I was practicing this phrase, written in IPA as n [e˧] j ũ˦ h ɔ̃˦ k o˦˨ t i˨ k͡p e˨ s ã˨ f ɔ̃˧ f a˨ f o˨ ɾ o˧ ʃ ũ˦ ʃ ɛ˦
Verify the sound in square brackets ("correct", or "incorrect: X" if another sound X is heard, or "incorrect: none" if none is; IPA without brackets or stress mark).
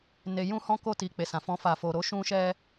correct